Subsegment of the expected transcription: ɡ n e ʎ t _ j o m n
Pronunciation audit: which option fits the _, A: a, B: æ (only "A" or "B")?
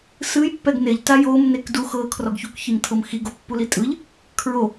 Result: A